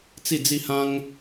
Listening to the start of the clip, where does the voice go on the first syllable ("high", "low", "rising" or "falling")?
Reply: falling